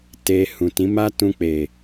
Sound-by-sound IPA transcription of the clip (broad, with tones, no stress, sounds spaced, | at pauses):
t e˧ h ũ˨ t ĩ˨˦ m a˦ t ũ˧ k͡p e˨